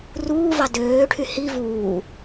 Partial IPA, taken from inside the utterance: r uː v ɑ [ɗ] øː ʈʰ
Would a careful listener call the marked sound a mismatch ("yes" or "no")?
yes